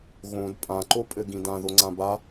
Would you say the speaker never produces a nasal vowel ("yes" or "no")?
no